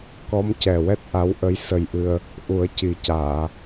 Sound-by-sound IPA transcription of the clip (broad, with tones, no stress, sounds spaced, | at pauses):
k ɔ˧˥ m c ɛ˨˩ w ɛ˦˥ t̚ ʔ a˧˥ w ʔ ə˧˥ j s ə˧ j ʔ ɨ˧ ə̯ | ʔ u˨˩˦ ə̯ c i˨˩ c aː˨˩˨